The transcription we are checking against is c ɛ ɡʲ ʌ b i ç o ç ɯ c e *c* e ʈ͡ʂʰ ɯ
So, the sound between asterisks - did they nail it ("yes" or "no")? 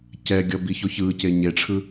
no